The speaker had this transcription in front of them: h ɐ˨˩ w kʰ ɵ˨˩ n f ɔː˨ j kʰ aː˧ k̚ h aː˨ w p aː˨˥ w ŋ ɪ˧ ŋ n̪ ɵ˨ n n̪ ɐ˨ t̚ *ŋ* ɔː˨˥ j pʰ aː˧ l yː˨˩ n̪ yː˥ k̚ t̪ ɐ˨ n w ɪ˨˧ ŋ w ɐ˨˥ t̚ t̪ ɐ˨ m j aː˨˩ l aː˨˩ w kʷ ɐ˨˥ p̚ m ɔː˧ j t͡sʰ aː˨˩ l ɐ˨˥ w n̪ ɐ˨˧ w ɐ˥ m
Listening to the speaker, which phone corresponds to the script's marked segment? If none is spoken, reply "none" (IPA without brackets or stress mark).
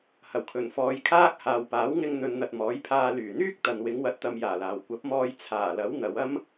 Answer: m